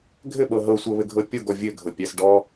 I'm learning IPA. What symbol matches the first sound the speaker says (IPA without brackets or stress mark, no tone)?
ɡʱ